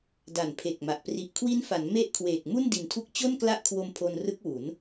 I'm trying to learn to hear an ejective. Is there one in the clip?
no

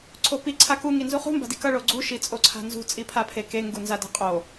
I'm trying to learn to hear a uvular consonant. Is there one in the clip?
yes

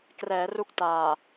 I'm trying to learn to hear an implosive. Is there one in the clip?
no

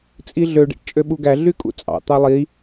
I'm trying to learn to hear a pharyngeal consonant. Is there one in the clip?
no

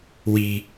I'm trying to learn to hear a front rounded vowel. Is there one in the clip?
no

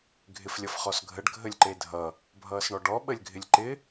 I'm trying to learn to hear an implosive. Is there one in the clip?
yes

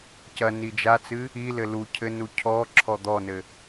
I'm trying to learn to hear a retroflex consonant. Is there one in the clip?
no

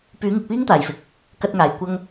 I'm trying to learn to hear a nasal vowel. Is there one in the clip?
no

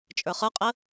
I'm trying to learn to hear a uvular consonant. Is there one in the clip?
yes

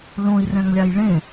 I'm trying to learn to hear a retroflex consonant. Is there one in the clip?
yes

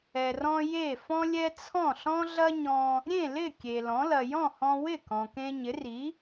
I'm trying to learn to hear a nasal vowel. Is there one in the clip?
yes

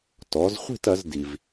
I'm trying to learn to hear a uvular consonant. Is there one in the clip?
yes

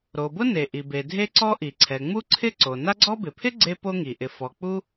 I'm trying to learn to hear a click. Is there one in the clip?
yes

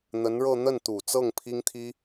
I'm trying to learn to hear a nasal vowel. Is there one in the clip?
no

